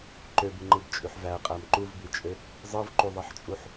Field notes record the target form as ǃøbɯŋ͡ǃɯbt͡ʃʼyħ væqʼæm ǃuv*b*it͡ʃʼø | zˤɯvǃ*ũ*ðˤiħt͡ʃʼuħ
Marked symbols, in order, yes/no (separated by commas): yes, no